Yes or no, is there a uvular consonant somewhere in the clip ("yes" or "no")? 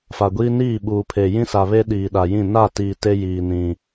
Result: no